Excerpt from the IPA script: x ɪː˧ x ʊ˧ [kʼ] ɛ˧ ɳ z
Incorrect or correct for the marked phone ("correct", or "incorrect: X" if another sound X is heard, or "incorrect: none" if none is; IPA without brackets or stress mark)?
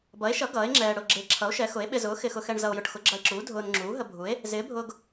incorrect: x